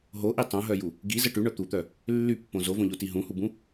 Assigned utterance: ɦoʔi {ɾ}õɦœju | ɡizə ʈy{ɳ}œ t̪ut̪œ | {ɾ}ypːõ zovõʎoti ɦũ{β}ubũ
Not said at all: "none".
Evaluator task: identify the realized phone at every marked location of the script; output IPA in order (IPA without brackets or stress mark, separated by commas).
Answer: tˤ, ɳ, lː, h